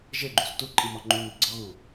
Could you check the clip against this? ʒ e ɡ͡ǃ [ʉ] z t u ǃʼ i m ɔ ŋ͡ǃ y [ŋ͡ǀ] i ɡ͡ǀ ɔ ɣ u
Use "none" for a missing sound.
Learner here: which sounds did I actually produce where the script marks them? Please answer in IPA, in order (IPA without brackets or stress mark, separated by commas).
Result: u, n